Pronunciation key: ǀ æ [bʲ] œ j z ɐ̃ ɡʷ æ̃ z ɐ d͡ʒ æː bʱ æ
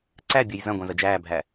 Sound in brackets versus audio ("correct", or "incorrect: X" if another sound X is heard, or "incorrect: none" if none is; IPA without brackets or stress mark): correct